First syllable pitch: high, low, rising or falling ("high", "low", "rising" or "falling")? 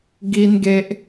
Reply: high